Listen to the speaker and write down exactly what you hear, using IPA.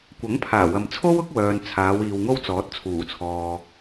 kʷ ɐ˨˥ ŋ pʰ aː˨˩ w ɐ˨ m t͡sʰ o˥ w ʊ˥ k̚ w œː˨ n t͡sʰ aː˨˧ w iː˨ w ŋ o˥ w t͡s ɔː˨˥ t̚ t͡sʰ uː˨˩ t͡sʰ ɔː˨

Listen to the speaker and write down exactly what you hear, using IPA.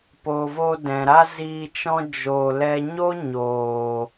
p oː˨ v o˧ d ɛ̃˨ ɾ a˦ z iː˧ t͡ʃ ɔ̃˦ d͡ʒ o˧ l ɛ˦ ɲ o˦ ɲ oː˨

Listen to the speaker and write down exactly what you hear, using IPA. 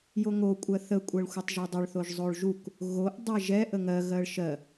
j o ŋ o kʷʼ ɜ θ ə kʷʼ ɜ ɭ xʷ ɛ tˤ ʒ o dˤ ʌ ɭ θ o ʒ zˤ o ɭ ʒ u k | ɣ o ʔ dˤ ɛ ʒ ɛ ʔ ə ŋ ɜ ɣ ɜ ɭ ʃ ɜ

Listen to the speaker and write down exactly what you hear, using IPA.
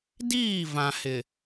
d iː˦˨ v ã˨ h ɪ˨

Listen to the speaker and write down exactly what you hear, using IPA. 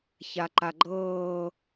ç a ǃ a ɡ͡ǃ ɤː

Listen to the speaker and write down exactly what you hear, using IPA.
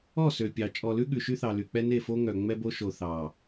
ɔ˦˨ s ø˨ pʲ ɑ˨ t͡ʃʼ ɔ˨ l ʉ˦ ɠ ʉ˨ ʃ y˦ θ ɑ˨ l y˨ k͡p ɛ˦ n e˦˨ f o˦ ŋ œ˨ ŋ͡m ɛ˦ b o˦ ʃ o˨ θ ɑ˨

